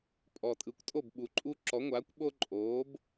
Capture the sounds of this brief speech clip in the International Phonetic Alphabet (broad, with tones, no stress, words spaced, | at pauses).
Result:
pʼɔ˨tʼɯ˨˦kʷtʼo˥˨b ɓu˨˦ǃʼu˦ ǁɔ˨˦ŋʷaː˨˦kʷ ɓo˦ǃʼoː˨˦b